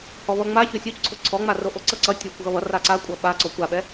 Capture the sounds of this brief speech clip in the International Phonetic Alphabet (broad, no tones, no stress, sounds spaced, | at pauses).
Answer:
h ɔ β ʌ ŋ͡m a ç o sʲ o c ǀʰ o ǀʰ ɔ ŋ͡m a r o ʔ o ǀ ʌ ǀ ʌ tʲ o kʷ ɣ ʌ β ʌ r a ǀ a kʷʼ ʌ ɓ a ǀ ɔ kʷ a ɓ ɛ